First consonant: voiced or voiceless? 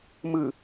voiced